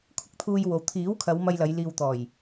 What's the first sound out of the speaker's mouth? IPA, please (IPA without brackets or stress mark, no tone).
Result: kʷʰ